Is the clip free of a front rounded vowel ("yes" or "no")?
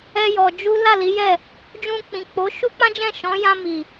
yes